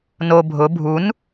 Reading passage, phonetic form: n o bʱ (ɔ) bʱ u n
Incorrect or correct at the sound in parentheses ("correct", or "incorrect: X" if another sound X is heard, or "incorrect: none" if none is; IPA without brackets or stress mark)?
incorrect: ʊ